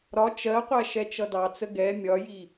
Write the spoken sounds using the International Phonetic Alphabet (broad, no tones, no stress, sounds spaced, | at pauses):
ɾ ɒ t͡ʃ ɜ qʷ æ ʃ ɛ t͡ʃ ʌ d ɑ t͡s ə ɡ ɛ mʲ ɒ j i